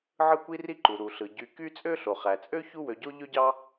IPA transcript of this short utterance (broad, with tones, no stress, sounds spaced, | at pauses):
ʕ ɯ˦ kʷ i˦ r i˥ ǃ u˩ ɾ u˩ ɬ ɯ˩ ɟ y˨ k y˦ t͡sʼ ø˥ ɬ o˩ χ æ˩ t͡sʼ ø˥ ç u˥ w ø˨ ɟ o˥ ʎ ø˦ ɟ ɑ˦